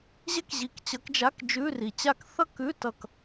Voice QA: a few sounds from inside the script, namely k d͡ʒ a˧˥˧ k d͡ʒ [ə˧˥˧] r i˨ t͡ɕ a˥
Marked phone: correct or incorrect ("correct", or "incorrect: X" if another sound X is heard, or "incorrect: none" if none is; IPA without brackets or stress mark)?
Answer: incorrect: ʉ˧˥˧